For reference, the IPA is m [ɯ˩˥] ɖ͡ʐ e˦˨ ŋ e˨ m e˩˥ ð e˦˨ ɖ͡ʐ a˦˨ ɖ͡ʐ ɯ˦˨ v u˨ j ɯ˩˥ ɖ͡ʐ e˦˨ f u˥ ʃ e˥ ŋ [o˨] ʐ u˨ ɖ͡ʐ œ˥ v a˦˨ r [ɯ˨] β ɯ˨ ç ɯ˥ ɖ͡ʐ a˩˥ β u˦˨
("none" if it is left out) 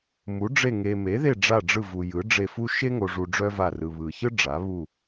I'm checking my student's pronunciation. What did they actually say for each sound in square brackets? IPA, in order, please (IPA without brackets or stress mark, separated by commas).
u˩˥, o˨, ɯ˨